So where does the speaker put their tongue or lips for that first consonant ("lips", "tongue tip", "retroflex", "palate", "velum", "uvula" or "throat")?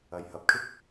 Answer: palate